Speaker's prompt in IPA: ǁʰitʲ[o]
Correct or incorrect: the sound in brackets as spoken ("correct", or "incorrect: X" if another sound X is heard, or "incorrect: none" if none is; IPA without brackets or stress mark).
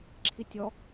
incorrect: ɔ